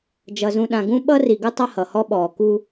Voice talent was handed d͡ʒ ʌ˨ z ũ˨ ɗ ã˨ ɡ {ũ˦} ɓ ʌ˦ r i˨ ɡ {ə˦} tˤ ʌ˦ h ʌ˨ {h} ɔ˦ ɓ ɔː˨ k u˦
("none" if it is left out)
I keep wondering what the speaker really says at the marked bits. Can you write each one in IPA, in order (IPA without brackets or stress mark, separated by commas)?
ũ˦, ə˦, h